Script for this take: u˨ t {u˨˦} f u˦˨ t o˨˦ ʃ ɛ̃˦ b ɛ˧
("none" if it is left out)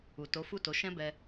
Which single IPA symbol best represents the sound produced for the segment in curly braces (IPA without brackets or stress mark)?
o˨˦